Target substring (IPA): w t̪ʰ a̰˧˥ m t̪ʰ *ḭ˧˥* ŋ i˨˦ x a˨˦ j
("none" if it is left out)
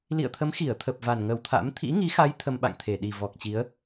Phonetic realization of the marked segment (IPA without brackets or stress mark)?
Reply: ḭ˧˥